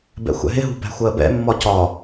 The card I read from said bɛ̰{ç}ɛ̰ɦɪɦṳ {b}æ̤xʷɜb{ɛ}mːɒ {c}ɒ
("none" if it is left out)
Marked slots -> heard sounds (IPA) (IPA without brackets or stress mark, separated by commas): xʷ, b, ɛ̰, c